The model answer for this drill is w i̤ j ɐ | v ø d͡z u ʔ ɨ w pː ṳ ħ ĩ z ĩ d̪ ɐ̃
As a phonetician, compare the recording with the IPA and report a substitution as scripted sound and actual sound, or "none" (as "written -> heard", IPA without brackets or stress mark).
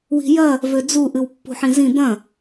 none